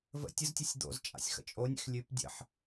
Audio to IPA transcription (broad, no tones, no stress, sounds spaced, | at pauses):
v ə̰ tʲ ə z tʲ ʉ sʲ d̪ o̰ z t͡ʃʼ a̰ sʲ x ə̰ t͡ʃʼ o nʲ ḛ x lʲ ʉ p dʲ ə̰ ħ